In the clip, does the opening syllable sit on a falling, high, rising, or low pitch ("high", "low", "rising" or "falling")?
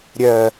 low